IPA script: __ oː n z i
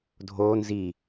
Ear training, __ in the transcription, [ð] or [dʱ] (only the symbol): dʱ